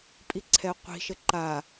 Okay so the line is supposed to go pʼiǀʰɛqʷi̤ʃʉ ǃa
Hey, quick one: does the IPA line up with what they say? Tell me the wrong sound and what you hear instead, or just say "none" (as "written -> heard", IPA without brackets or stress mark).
ʉ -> ə